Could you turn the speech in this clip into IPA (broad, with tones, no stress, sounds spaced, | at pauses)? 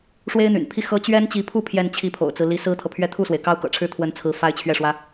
ʂ w e˥ ɪ̯ n̪ y̰˨˩ n pʰ i˥˩ x ɤ˥ t͡ɕ ɥ ɛ˥ n t͡ɕ i˧˥ pʰ u˥˧ pʰ j ɛ˥˧ n t͡ɕʰ i˥˩ pʰ o̰˨˩ ʊ̯ t͡s ɹ̩˦ l i˧˥ s ɹ̩˥ t̪ʰ ɤ˨ pʰ ɥ ɛ˥˧ t̪ʰ u˥˩ s w e˩ ɪ̯ k ɑ˥ ʊ̯ k ɤ̰˨˩ ʈ͡ʂʰ ɻ̩˥˩ t̪ʰ w ə˧˥ n t͡sʰ ɹ̩˧˥ f a˥ ɪ̯ t͡ɕʰ ɥ ɛ˥˩ ʂ w ä˥